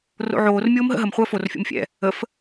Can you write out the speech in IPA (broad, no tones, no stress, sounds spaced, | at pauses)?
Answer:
r o̰ ʕ oː r mʲ oː m ɦ ə̰ ɦ ə m χʷ əː f o r fʲ o̰ m fʲ ɛ̰ | ə f